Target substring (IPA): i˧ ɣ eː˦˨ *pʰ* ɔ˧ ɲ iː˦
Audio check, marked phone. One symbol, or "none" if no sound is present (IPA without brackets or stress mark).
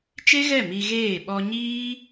ɓ